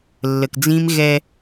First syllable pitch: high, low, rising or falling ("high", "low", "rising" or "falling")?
low